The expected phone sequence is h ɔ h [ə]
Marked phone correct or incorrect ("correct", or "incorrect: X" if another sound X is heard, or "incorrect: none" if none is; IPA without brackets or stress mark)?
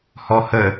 correct